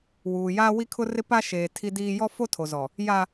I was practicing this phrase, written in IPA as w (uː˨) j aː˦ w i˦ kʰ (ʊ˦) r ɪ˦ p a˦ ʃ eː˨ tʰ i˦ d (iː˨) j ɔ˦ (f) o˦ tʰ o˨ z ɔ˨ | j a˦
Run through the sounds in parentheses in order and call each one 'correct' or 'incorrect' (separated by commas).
correct, correct, incorrect, correct